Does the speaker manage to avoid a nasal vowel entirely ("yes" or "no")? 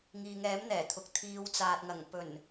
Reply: yes